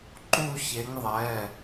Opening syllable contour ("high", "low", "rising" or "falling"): falling